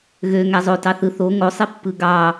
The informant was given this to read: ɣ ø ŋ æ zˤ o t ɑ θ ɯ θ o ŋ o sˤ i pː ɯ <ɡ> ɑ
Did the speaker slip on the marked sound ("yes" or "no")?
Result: no